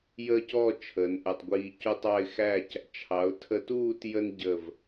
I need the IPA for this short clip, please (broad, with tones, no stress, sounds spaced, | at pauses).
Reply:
j əː˥˧ c ɔ˥˧ t͡ʃʰ əː˩˧ n ʔ əː˧˩ tˤ ɡʷ iː˧ c u˥ tˤ ɑ˥˧ ɪ̯ x æ˥˧ c | t͡ʃʰ ɑ˩˧ ʊ̯ tʰ ə˧ t uː˥˧ t j ə˥ n ɟ ə˧˩ v